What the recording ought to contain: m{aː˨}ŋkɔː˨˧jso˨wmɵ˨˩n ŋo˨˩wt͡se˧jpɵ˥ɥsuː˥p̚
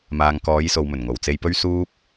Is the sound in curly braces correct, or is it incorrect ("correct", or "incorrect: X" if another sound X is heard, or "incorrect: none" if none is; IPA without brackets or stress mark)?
correct